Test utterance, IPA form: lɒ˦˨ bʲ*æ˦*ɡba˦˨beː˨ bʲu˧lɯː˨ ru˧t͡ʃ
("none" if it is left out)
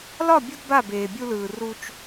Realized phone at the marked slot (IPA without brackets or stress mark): ɐ˦